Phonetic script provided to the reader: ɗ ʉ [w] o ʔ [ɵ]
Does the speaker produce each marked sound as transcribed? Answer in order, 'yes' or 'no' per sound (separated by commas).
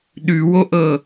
yes, no